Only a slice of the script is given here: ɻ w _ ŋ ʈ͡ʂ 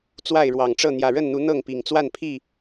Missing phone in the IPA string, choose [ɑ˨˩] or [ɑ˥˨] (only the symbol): ɑ˨˩